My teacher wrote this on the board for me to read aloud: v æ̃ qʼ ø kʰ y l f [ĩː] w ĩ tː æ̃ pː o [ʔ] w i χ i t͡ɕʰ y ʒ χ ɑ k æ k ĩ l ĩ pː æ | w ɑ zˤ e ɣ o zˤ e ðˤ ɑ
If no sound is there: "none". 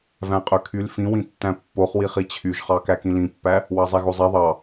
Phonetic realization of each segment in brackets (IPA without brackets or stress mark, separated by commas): ĩ, χ